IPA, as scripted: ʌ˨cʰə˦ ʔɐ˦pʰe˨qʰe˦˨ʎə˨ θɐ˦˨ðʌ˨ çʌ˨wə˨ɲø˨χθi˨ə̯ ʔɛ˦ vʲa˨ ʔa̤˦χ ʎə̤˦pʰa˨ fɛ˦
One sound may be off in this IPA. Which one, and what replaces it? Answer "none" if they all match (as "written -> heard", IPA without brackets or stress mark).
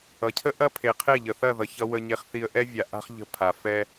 ø˨ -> e˨